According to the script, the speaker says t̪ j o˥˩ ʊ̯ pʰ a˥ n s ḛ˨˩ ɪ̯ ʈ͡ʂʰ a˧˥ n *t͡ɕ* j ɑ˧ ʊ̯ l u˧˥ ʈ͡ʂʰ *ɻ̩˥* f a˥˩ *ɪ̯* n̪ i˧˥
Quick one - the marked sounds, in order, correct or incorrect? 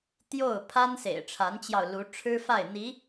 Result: correct, correct, correct

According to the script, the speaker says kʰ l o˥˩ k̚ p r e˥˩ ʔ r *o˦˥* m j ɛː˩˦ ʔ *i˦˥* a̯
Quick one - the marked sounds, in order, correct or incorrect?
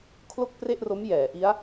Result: correct, correct

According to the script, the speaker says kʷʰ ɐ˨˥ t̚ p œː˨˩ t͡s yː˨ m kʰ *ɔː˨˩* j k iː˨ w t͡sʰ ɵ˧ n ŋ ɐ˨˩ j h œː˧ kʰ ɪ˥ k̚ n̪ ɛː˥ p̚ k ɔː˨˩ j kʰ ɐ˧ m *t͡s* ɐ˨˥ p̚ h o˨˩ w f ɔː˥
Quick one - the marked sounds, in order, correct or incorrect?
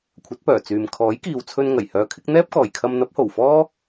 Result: incorrect, incorrect

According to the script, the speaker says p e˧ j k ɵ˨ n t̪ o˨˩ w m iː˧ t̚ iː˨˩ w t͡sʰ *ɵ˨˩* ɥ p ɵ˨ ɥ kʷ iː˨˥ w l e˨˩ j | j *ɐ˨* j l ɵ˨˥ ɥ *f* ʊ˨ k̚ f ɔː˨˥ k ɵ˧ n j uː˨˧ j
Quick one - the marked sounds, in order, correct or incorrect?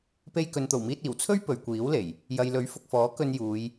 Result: incorrect, correct, correct

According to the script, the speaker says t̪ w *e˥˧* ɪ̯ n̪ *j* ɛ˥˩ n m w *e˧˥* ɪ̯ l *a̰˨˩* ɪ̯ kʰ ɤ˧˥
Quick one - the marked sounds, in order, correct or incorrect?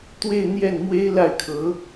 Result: correct, correct, incorrect, incorrect

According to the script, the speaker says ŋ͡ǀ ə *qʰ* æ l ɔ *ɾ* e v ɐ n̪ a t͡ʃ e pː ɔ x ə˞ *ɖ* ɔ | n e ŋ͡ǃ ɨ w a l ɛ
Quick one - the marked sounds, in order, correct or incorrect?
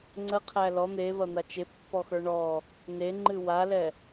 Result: correct, incorrect, incorrect

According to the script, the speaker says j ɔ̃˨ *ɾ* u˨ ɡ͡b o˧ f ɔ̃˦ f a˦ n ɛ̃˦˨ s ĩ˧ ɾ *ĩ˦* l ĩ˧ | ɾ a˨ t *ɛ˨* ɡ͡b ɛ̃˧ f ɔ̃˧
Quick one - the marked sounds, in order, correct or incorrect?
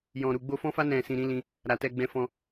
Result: correct, correct, incorrect

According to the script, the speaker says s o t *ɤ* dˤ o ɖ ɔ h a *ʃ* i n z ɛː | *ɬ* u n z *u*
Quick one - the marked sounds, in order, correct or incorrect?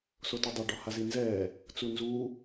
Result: incorrect, incorrect, incorrect, incorrect

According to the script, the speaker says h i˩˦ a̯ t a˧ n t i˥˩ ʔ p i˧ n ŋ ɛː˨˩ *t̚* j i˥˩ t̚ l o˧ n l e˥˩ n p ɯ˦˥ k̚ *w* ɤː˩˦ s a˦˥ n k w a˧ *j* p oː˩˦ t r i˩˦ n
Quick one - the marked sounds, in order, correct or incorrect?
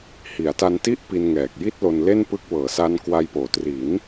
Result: incorrect, correct, correct

